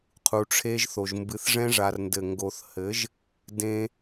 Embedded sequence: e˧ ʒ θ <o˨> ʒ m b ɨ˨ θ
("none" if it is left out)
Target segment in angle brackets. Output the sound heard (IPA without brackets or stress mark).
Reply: o˨